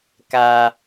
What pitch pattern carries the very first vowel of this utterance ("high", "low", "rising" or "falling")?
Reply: high